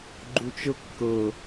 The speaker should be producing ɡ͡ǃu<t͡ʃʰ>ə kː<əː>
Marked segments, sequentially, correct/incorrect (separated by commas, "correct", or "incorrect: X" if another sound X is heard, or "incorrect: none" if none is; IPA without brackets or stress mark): incorrect: t͡ʃ, incorrect: ə